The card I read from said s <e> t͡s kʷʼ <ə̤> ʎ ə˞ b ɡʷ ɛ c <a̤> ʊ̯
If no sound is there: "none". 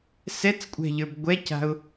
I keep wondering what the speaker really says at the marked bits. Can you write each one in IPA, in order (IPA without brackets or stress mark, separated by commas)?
ɛ, ɛ̤, a̤